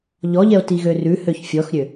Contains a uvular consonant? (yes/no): no